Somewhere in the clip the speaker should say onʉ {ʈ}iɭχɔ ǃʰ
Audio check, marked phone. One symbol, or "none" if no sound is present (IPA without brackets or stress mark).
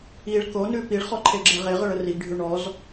p